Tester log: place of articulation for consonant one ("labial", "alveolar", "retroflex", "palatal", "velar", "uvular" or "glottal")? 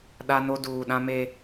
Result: alveolar